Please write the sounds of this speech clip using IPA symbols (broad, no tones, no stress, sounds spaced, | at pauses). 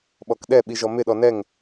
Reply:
ɓ ɔ k ɗ ɛ ɓ i ʒ ɔ m ɪ ɗ ɔ n ɛ ŋ